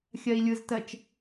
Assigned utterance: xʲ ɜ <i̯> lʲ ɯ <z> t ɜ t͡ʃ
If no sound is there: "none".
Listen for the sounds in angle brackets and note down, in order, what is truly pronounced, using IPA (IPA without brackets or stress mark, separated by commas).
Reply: i̯, z